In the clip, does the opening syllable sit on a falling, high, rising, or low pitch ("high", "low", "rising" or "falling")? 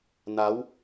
rising